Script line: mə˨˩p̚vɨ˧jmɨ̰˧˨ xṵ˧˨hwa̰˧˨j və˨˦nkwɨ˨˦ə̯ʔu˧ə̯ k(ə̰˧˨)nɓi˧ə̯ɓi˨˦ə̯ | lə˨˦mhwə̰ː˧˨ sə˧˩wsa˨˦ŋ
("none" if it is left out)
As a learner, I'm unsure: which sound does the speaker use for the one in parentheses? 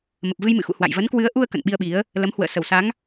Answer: ə̰˧˨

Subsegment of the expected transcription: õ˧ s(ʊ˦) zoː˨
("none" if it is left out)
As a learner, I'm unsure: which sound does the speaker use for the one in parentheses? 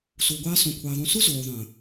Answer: ʊ˦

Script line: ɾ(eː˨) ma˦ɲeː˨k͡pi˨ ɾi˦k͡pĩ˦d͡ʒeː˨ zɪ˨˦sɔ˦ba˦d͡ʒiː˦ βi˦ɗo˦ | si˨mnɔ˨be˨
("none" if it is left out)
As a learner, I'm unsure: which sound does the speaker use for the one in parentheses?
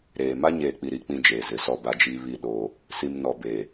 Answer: eː˨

